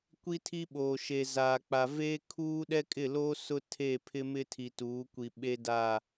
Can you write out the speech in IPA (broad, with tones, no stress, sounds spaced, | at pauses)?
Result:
kʷ i˦ tʰ i˦ ɓ oː˨ ʃ e˨ z aː˨ k͡p a˨ v eː˦ kʰ uː˦ ɗ ɛ˦ kʼ ɪ˦˨ l oː˦ s ʊ˦ tʰ e˦˨ pʰ ɪ˦ m ɪ˦ tʰ i˨ t uː˨˦ kʷ i˨ ɓ e˦ d a˦˨